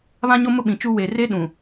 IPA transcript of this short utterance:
β ã˦ ɲ o˦ m ʊ˦ ɓ ĩ˨ t͡ʃ u˦ w e˨ r e˦ ɗ ũ˨

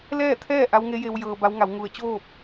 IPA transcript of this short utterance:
l ɛː˥˨ t̪ʰ ɛː˥˨ ʔ a˧˥ w ŋ e˧˥ j e˧ w j ɤː˧ b a˧˥ w ŋ a˩˧ w ŋ u˧˩ ə̯ t͡ɕ oː˥˨ p̚

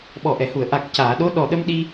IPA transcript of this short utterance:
ɓ ɔ˨˩ ʔ ɛ˨˩˨ h u˨˩˨ ə̯ ʔ a˨˩ k̚ c aː˨˩˨ ɗ o˧˥ ɗ ɔ˨˩ ɗ ə˧ m ɗ i˧

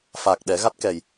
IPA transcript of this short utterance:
f a˨˩ k̚ ɗ ɛ˨˩˦ ɣ a˦˥ t̚ k ɛ˨˩ j

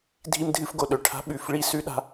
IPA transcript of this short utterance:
dʱ i˧ m dʱ ɨ˧ f ɡ o˩ ɗ ɵ˩ ʈʰ a̤˧ ɓ ʉ˩ f ɭ i˧ s ʉ˧ ɗ a̤˧

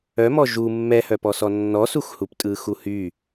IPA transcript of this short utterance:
œ m ɔ ʒ u mː ɛ h œ p ɔ s ɔ nː ɔ s u x h u p tʼ ɯ x u h y

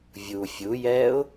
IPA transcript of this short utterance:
vʲ u fʲ u j ɛː ʊ̯

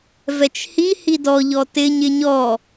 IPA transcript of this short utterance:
v ɛ t͡ʃ h i h i d ɔ ʎ ɔ t ɪ ɲ ɪ ɲ ɔ

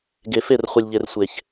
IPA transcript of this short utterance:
ɡ e˨ f e˦˨ r χʷ ə˨ lʲ ʎ e˨ r sʷ e˨ ç

